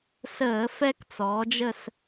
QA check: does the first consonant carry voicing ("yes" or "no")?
no